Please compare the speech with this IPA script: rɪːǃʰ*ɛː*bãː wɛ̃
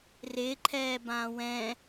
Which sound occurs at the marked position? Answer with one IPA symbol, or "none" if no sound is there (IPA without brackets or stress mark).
ɛː